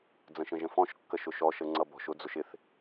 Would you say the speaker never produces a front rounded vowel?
yes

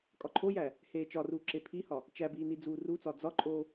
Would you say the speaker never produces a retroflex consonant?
yes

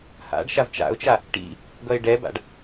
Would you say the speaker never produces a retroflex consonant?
no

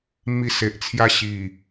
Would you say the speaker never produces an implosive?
yes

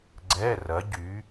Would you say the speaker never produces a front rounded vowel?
no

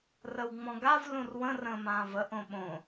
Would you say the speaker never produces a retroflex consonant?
yes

